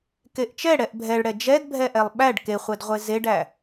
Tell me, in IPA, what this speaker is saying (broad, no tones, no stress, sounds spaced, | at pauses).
k e ʔ t͡ʃ ɛ ɽ ɛ ʔ bʱ ɛ ɭ ɽ ɛ d͡ʒ ɛ d bʱ ɛ ʔ ɛ lˠ ɓ æ ɖ k e χʷ ɛ d ʁʷ e z e ɖ æ